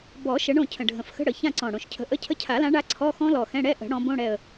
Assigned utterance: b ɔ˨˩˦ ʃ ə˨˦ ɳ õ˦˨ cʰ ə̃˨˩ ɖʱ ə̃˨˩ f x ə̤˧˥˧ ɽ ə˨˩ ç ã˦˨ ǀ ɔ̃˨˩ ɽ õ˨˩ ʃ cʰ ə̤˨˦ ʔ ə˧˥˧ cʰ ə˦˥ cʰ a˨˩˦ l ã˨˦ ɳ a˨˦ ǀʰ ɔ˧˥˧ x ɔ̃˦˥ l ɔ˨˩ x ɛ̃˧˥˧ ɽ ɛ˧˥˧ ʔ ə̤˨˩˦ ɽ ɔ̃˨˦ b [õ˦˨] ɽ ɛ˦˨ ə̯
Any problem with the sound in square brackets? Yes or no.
yes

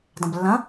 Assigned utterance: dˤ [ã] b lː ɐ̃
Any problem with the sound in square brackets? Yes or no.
yes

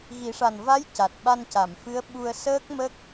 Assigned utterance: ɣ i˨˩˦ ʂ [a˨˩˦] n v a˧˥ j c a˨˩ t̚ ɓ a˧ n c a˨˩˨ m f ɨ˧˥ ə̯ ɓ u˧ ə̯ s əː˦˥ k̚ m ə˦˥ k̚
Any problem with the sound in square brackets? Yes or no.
yes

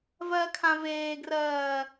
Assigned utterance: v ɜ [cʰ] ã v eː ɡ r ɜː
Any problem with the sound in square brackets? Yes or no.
yes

